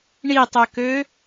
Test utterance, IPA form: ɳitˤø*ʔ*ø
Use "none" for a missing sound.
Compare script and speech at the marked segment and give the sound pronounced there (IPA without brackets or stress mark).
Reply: k